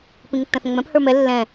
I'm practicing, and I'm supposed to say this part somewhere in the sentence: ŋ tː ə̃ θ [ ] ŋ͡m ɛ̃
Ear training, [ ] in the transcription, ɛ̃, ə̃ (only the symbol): ə̃